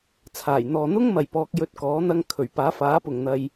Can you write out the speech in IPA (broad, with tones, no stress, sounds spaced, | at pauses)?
t͡sʰ aː˨˩ j n̪ ɔː˨ n̪ ʊ˥ ŋ m ɐ˨ j p ɔː˧ k̚ j ɵ˧ t̚ k ɔː˨˥ n̪ ɐ˥ ŋ kʰ ɵ˨˩ ɥ p aː˨˥ f aː˨˥ p ʊ˨ ŋ n̪ ɐ˧ j